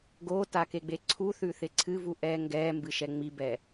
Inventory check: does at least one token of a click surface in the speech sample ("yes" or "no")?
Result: yes